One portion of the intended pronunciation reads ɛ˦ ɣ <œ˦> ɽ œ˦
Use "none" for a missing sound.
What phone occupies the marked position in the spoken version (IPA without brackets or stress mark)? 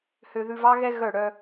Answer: œ˦˨